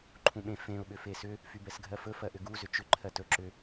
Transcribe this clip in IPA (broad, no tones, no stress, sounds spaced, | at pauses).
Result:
ǃʰ ũ ɓ ẽ f ẽ ʊ̯ ɓ ʏ f e s ʏ | f y b ɛ s ɡʱ ɜ f ɵ f ɜ ʔ ʏ ɡ u z ʏ t͡ʃ ʏ ǃʰ ɜ t ɵ ǁ ʏ